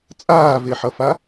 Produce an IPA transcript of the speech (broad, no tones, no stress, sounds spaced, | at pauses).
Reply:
t͡sʼ aː v e ħ ʌ f a